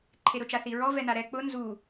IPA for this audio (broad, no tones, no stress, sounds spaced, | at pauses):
ǃʰ e ɾ ʊ t͡ʃ a θ i ɹ ɔ v ɛ n a ɾ ɛ k͡p ʊ n z u